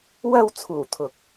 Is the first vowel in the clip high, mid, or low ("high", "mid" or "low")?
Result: low